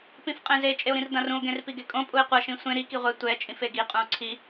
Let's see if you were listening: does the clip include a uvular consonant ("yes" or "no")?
yes